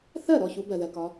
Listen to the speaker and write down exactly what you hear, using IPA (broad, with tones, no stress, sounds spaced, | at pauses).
θ ɜ˥˩ ɾ ɔ˥˩ ç u˨˦ b ɜ˩ ð ɜ˩ k ɒ˨˦